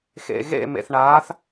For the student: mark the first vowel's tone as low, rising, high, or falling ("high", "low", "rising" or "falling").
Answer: low